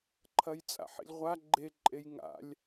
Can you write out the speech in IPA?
ǃʰ ɐ j t͡sʼ a̰ ħ ḭ lʲ ʁʷ a ɡ͡ǃ e ǃʼ e j ŋ a̰ lʲ

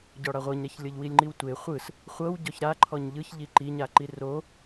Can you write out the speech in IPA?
ɟ ɔ ɽ a ʁʷ ɤ ɲ ɾ ɛ ç lʲ ɤ ʎ w i lʲ ŋ͡ǃ i w tʷ e χʷ ɯ s | χʷ ɤ w ɟ ɔ ç ɾ a ǃʰ ɔ ɲ ʎ ɯ ç ʎ i ǃ i ɲ a ǃ i r o

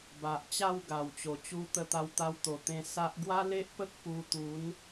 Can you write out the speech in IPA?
b a˨ ʔ t͡ɕ a˥˧ w ɡ a˨˩ w t͡ɕ o˨˩ t͡ɕ u˧ t̪ ə˧ t̪ a˧ w t̪ a˧ w t̪ o˨˩ t̪ ẽ˧ s a˦ ʔ ɡ w a˦ l e˦ ʔ p ə˦ k̚ p u˧ t̪ u˨˦ n

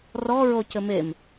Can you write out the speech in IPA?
r ɔ ɹ o c ɘ m e m

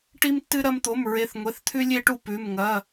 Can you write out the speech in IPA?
ʈ i˧ m tː ɨ˧ ɾ ɐ˧ m t̪ o˩˧˩ m ɹ e˩˧˩ θ ŋʷ e˩˧˩ θ t̪ʰ ʉ˧ lʲ e˧ ʈ u˧ p ʉ˩˧˩ m ŋ ɐ˩˧˩

